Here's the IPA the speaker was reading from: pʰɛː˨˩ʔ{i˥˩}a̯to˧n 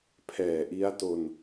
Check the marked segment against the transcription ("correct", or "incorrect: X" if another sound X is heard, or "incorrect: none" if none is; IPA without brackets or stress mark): incorrect: i˦˥